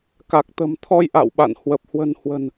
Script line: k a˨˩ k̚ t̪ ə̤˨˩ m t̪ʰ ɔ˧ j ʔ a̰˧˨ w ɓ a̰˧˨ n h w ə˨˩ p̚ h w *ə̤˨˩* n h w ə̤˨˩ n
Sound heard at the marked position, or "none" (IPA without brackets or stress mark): ə̤˨˩